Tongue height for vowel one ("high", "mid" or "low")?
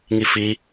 high